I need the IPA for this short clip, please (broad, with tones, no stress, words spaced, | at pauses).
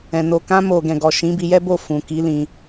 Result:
ɛ̃˨ no˨ kã˧mo˨ ɡɛ̃˨ɡɔ˨ ʃĩ˨˦bi˧jɛ˦bo˦˨ fũ˨ki˨˦lĩ˧